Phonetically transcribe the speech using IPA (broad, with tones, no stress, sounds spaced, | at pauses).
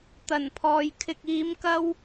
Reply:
t̪ ɐ˨˩ n pʰ ɔː˨ j kʰ ɪ˧ k̚ iː˨˧ m k ɐ˧ w